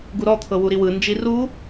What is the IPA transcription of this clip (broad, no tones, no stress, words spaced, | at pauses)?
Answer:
ɡuɾɔt̪ʰɤ wuɾiwɯnd͡ʒi ru